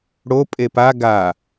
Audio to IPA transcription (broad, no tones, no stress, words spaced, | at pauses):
ɽo pʼepa ɡa